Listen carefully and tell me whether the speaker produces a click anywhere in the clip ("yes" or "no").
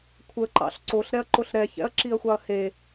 yes